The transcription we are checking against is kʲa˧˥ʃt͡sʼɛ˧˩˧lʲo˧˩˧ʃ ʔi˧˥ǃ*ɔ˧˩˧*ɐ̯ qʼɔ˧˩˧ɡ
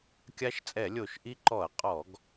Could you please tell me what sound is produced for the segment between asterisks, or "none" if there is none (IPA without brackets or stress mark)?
ɔ˧˩˧